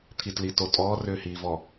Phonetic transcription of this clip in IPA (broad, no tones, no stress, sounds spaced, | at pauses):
t̪ʰ i t l i t o tʼ ɔː r ʏː h iː v ɔ